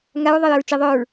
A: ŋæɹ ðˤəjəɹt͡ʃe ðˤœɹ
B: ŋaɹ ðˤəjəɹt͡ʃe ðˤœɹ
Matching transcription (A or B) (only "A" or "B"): B